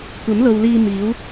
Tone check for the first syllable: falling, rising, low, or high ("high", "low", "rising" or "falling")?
rising